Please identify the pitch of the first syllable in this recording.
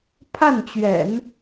falling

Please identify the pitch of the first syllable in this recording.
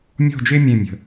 falling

